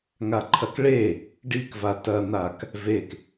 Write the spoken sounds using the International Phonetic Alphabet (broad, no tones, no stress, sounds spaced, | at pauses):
ŋ a ǃʰ ɐ k ɭ e | ɖ i k v a t ɐ n̪ a k | v e k